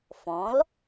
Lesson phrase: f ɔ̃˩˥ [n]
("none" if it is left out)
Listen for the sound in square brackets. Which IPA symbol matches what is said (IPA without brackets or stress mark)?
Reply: l